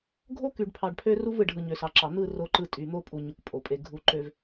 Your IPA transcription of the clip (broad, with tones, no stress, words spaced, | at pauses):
ɡʱo˦ ky˨ɖpʰɑ˨ɖpʰø˦ru˦v ɯ˨ɖ ɦɯ˨ɲø˨sɑ˨ǁɑ˨ n̪ɯ˦˨ ro˦ǃɯ˦ tʼy˨n̪o˦pʼu˨ ɲu˨kpʼo˨pʼe˨ ɡʱu˨ ǃø˨v